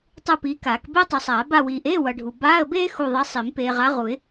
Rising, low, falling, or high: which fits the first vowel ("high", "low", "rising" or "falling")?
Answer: falling